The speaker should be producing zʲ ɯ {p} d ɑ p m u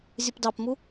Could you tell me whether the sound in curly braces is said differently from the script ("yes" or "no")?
no